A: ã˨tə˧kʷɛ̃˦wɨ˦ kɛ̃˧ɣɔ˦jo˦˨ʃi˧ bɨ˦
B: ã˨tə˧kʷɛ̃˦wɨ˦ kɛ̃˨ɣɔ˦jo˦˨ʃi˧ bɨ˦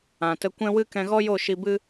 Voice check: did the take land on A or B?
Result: A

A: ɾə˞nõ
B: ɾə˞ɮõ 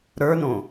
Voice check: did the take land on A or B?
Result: A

